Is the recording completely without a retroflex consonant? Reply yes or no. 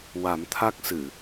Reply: yes